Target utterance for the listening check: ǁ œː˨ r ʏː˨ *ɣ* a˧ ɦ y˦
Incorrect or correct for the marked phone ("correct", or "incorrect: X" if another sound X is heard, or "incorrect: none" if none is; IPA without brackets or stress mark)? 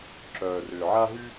incorrect: ʕ